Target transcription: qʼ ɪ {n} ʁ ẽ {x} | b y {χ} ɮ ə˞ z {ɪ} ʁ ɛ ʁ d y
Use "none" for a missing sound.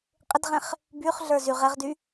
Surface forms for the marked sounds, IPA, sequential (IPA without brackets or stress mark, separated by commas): d, χ, χ, y